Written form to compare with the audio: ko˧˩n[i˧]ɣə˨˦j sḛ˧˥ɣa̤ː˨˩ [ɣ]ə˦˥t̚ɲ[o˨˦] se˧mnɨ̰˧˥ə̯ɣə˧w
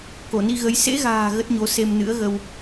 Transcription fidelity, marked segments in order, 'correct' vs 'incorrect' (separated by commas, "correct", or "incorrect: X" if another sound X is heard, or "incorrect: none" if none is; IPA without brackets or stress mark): correct, correct, correct